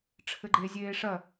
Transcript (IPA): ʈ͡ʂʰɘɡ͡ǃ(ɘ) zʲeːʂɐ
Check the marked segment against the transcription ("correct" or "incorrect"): incorrect